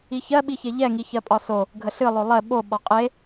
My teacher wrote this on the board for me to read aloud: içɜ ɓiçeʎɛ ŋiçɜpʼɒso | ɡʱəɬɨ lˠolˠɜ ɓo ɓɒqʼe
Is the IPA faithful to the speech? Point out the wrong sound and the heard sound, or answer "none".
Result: none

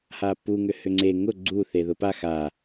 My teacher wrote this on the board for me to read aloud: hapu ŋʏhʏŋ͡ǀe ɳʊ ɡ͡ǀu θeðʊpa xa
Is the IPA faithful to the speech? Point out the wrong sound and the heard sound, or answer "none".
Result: ɳ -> ŋ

